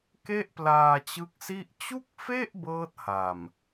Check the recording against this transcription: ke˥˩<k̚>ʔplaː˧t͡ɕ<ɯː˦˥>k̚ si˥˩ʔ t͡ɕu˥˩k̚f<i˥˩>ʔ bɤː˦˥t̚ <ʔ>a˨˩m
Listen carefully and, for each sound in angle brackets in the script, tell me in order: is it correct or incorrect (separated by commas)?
incorrect, incorrect, incorrect, incorrect